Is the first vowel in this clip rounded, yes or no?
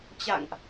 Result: no